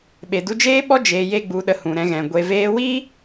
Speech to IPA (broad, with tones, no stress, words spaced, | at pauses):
ɓe˨du˧d͡ʒeː˦ɓɔ˦ d͡ʒeː˧je˦ɡ͡bu˧ɗə˧ hũ˨ɾɛ̃˧ɣɛ̃˨ ɡʷe˨veː˧wi˦